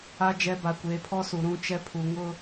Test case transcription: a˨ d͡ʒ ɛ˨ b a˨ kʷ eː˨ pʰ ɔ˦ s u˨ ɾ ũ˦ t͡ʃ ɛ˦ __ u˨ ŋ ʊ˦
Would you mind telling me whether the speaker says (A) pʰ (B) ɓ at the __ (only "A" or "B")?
A